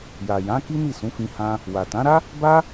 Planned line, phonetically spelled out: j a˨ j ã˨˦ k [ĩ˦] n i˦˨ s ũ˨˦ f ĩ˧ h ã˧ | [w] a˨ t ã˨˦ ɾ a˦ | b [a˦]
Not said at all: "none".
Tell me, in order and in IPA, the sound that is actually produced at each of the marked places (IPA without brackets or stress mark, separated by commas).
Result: i˦, w, a˦